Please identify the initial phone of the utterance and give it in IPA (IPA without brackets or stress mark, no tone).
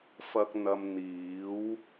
f